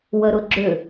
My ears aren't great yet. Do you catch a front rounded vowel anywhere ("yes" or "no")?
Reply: yes